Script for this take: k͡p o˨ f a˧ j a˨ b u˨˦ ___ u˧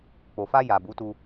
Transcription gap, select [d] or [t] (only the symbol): t